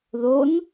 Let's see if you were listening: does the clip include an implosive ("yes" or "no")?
no